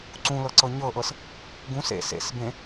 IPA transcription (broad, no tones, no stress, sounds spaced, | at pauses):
ǀ ũ l ɤ ǀ ɤ ɲ ɤ ʔ ɤ s | ɡ ũ s ḛ s ḛ s b ẽ